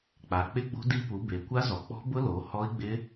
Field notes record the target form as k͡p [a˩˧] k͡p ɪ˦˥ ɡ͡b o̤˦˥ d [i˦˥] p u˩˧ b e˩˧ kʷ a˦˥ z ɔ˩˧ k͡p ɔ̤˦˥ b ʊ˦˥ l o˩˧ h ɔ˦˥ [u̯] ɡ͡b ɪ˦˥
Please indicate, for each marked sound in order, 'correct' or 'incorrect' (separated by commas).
correct, correct, incorrect